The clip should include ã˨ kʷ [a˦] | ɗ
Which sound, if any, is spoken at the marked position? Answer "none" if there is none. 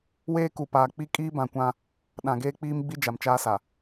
ã˦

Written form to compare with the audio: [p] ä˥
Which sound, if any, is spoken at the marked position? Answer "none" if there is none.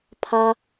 pʰ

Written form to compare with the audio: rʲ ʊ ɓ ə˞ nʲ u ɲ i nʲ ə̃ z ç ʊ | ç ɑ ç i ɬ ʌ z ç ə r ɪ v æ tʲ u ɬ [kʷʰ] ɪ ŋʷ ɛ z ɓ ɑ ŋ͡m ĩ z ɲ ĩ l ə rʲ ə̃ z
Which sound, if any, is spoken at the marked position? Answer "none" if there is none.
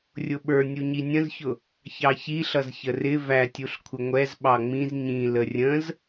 kʷʰ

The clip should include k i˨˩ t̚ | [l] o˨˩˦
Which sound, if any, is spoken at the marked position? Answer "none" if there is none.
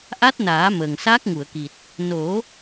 n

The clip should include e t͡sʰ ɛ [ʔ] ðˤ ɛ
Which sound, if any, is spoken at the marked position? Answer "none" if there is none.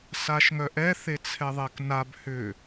none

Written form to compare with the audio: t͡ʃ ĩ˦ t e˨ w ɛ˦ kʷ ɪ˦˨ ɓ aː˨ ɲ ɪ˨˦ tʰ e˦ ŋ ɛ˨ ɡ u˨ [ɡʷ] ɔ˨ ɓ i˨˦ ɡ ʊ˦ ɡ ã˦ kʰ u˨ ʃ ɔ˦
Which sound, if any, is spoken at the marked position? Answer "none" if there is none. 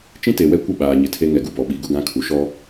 b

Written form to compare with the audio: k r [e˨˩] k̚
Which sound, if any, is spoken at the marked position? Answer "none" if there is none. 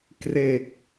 e˨˩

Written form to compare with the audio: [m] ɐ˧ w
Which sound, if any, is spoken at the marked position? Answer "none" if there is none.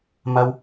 m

